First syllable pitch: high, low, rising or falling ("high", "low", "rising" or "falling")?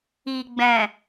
low